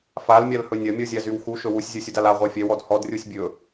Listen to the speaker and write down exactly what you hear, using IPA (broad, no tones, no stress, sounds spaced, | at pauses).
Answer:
f a l mʲ a l h ɵ nʲ ɐ mʲ ɔ zʲ a z y w x u ʃ ɵ w u sʲ zʲ u sʲ u d a l a ʁʷ ɛ fʲ ɛ w ɔ d h ɔ d rʲ u sʲ bʲ ɵ